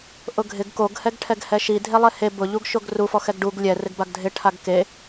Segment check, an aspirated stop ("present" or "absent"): present